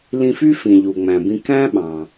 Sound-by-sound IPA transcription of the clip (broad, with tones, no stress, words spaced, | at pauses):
lĩ˧fy˥fĩ˩ ʎu˩ŋ͡mæ̃˩bĩ˧ kæ̃˥ɓɑ̃˩